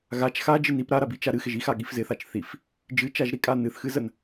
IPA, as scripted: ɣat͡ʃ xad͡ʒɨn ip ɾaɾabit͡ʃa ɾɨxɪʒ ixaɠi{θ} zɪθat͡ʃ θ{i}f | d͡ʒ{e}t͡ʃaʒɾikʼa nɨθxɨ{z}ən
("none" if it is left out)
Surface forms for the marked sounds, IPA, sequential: f, i, ɨ, z

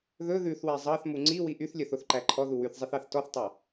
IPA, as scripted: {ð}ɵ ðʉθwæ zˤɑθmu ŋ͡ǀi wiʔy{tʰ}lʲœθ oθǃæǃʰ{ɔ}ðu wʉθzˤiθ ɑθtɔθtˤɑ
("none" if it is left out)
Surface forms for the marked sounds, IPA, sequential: ð, θ, ɔ

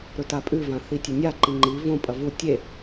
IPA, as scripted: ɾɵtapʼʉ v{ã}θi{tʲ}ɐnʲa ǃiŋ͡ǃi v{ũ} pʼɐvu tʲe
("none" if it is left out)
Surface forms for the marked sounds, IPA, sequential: ã, tʲ, õ

